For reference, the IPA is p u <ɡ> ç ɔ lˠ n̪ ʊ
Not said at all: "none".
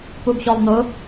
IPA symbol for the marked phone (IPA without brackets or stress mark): ɡ